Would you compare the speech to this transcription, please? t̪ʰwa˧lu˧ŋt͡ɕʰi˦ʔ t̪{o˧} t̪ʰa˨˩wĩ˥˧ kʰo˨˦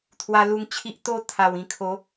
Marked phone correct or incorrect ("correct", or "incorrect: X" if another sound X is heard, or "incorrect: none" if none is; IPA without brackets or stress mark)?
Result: incorrect: o˥˧